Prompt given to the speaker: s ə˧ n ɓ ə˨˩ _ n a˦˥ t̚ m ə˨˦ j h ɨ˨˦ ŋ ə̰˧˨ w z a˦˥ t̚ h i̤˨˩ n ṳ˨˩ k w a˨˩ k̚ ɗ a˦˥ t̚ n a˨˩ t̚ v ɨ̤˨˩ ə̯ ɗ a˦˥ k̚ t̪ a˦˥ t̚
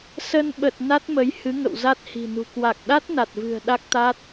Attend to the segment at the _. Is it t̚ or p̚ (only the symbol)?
t̚